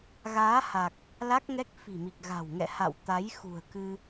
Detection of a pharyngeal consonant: absent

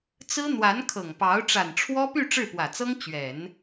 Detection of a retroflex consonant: present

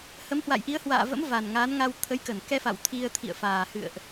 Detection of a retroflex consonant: absent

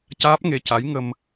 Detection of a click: absent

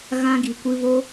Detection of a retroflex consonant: absent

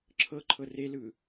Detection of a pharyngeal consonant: absent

